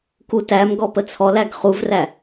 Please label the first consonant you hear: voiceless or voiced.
voiceless